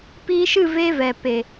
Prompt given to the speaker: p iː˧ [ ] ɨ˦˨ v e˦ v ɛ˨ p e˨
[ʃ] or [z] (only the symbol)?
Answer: ʃ